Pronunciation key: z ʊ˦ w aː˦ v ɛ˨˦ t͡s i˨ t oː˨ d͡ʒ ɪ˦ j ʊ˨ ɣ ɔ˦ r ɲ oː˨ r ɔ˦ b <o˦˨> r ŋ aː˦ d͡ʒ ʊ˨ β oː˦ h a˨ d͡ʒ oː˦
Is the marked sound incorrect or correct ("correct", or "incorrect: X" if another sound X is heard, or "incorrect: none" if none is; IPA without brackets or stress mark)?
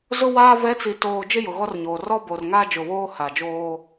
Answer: incorrect: o˨